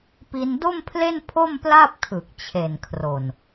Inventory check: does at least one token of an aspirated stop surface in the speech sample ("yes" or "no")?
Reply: yes